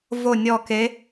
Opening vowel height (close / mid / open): mid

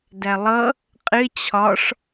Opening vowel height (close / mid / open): open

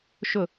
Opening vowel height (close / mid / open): close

